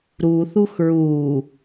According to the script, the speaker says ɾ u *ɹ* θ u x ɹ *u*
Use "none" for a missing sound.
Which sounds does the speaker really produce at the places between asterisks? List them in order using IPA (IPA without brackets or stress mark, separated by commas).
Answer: none, uː